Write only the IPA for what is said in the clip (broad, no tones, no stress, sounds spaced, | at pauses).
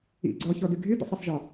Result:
ḭ ɡ͡ǀ ɔ ç ɔ d y ɡʱ y d ɔ̰ sˤ ɨ sˤ ʒ ɔ